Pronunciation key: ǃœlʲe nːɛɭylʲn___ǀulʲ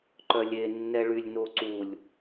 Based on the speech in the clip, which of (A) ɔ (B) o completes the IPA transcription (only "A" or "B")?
B